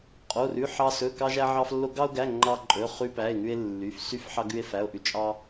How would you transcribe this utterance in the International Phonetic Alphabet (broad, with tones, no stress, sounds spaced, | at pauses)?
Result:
qʼ o˧˥˧ r ʉ˧˥˧ ħ ɑ˥ s ɵ˧˥˧ k ɑ˥ ʒ æ˥ ʕ ɑ˥ f lː o˥ ɡ ɑ˥ o̯ ɡ æ˧˥˧ ŋ͡ǃ ɑ˥ ǃʼ ɵ˧˥˧ χ ʉ˥ p æ˧˥˧ e̯ ŋ ʉ˥ e̯ lː y˧˥˧ f s y˥ f ħ ɑ˥ ɡ ʉ˥ e̯ f æ˧˥˧ o̯ ʔ ʉ˥ t͡ʃʼ ɑ˥